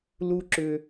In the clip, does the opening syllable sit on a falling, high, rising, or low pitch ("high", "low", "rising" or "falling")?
high